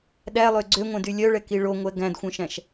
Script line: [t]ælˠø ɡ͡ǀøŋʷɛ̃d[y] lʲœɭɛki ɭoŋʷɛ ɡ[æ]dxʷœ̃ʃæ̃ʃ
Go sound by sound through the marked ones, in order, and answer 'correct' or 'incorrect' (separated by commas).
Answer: incorrect, correct, incorrect